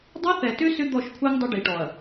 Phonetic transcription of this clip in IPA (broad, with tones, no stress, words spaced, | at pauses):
dˤa˦θɛ˨tʏ˦ sʏ˦d̪ɔ˦˨ʃkʷʰɛ˦ŋ dˤʏ˦ɖi˨ʈɔ˨ɐ̯